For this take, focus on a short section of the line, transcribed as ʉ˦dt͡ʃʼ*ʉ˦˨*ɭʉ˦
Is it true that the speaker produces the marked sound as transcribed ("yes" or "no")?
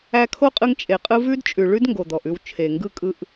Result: no